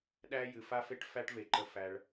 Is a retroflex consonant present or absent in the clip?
present